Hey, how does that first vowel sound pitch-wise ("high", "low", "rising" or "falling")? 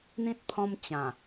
high